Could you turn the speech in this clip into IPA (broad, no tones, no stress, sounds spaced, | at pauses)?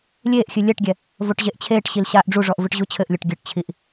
lʲ eː ʔ xʲ ɨ lʲ ɛ ʈ ɡʲ ɛ | v o ʈ ʑ e ʔ t͡ɕʰ eː ʈ ɕ i l ɕ aː ʔ ɖ͡ʐ u ʐ ɔ ʔ v ɨ ʈ ʑ u t͡ɕʰ ɘ ʔ lʲ o ʈ ɡʲ ɘ ʈ t͡ɕʰ i ʔ